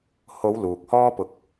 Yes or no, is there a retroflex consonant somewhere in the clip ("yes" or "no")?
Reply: no